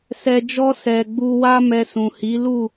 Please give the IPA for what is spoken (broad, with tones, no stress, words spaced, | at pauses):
sɛ˨d͡ʒɔ˧ sɛ˨ ɡ͡bu˧wa˦mɛ˧sũ˨ hi˨˦ lu˦˨